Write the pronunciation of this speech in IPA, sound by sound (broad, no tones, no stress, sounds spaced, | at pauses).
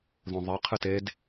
ð õ ðˤ e qʰ ɨ t e d